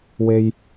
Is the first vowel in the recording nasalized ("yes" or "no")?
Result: no